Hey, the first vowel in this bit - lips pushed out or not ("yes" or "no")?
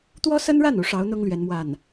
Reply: yes